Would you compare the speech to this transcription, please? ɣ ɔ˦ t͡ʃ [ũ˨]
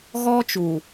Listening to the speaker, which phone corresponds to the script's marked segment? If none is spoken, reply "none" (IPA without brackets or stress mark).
u˨